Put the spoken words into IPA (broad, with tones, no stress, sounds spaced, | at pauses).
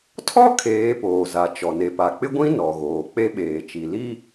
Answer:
tʰ ɔ˦ kʰ eː˨˦ p oː˨ z a˨ t͡ʃ ɔ˨ n e˨ p a˨ k͡p ɪ˦ ɡʷ ĩ˦ n ɔ˨ ɣ oː˨ k͡p e˦ ɓ eː˨ t͡ʃ i˨ l i˦